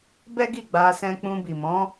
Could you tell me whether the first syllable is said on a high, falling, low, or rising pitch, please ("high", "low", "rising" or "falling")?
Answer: high